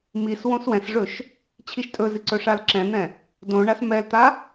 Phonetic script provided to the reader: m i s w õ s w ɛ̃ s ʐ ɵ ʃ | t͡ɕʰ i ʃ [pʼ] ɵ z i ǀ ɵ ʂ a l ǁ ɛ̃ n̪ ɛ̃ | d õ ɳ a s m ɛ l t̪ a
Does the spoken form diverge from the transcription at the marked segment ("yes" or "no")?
yes